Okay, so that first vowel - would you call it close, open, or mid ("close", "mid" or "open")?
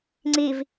close